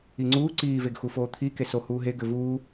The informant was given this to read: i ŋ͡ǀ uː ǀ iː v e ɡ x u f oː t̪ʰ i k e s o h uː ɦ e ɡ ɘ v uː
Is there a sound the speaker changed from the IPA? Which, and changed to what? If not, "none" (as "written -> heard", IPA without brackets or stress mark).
none